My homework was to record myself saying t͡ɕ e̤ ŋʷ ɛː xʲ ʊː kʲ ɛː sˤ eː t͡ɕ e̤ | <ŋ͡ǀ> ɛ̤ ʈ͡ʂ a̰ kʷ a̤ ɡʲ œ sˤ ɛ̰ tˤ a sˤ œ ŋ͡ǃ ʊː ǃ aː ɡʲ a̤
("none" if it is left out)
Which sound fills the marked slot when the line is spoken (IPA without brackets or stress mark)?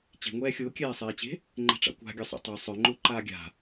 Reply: ŋ͡ǃ